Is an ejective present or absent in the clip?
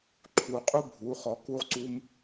present